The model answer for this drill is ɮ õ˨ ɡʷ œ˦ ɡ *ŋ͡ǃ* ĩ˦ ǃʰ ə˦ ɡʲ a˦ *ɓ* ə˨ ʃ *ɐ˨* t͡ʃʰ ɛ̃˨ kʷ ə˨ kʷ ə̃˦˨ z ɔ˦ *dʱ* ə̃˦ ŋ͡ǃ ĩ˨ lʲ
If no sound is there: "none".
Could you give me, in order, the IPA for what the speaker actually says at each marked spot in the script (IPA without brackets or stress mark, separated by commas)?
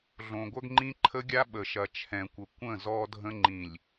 ŋ͡ǃ, ɓ, ɐ˨, dʱ